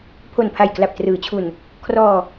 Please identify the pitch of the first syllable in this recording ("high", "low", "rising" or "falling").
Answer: low